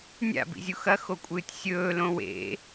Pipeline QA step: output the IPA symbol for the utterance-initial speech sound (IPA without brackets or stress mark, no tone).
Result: nʲ